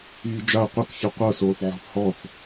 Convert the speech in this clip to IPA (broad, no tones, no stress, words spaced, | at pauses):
iːd͡ʒaə̯ qʷɤk çɯqʷɤ soːθʕɔ̤θhɔθ